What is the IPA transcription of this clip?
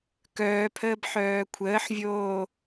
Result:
k œː pʰ əː b ħ œː kʷʰ əː ħ vʲ oː

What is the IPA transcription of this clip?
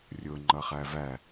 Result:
rʲ ʊ ŋ͡ǃ ʌ χ æ v æ

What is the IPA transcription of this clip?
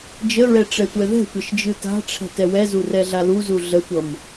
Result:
d͡ʒ ə ɹ ɛ ʈ͡ʂ ɛ tʷ ɛ ð ɛ̤ tʷ ʌ ʃ d͡ʒ ɯ t a̤ ʈ͡ʂʰ ɛ̤ t ɛ w ɛ z u r ɛ ɮ a l u z u ɮ ə tʷ ʌ m

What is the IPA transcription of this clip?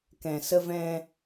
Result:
k ɛ̃˨ s ə˧ v ɛ̃˧

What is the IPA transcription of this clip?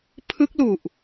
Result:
pʰ ɯ˦˥ k̚ l u˨˩ ʔ

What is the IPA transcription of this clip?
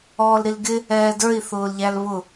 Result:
ɔː l ɾ i l ɡ ɪ | ɛː d ə˞ i̯ θ ʊː l ʎ æ l β ʊ

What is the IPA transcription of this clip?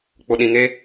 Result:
k͡p ʊ˨ ɗ ĩ˨ ŋ e˦

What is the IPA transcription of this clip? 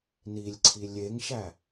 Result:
n i lʲ ǀʰ i lʲ e ŋ ʃ æ

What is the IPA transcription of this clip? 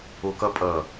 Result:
o k ʌ pʼ ʌ

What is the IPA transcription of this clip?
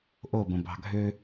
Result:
ʔ o b ə̃ b ɑ̤ ɡʱ ø

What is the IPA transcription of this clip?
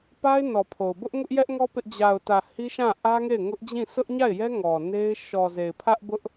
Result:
p a˦ ɪ̯ n ɔ˨ pʰ o˨ ʊ̯ b ʊ˦ ʔ ŋ ʊ˦ ʔ j ɛ˦ ʔ ŋ ɔ˦ p ɪ˦ ʔ d͡ʑ a˨ ʊ̯ t ä˨ h i˦ ʃ ã˦˨ ʔ ä˦ ŋ e˦˨ ɪ̯ ŋ ʊ˦ ʔ d͡ʑ ĩ˦˨ sʰ ʊ˦ ʔ ɲ a˦˨ ɪ̯ j ɛ˦ ŋ ɔ˨ n e˦ ɪ̯ ʃ ɔ˨ z e˨ ɪ̯ pʰ ä˦ ʔ b ʊ˦ ʔ

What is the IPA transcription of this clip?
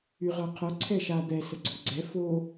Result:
y ʁ œ qʰ œ ǀʰ ɛ ʃ a d̪ ɛ s ə ɡ͡ǀ u ɡ͡ǀ ɛ f o

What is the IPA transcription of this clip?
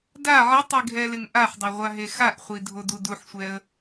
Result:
d a ʕ ɪ tˤ i ɡʱ ɛ l ɪ ŋ ʔ a ħ dˤ o ʁʷ a ɦ e x a ʔ χʷ i dʱ o d u d u ħ sʷ ɛ ə̯

